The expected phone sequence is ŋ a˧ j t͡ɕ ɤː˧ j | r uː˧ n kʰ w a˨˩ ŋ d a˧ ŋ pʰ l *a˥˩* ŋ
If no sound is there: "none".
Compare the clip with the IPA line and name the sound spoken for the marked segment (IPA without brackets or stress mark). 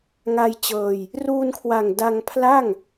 a˥˩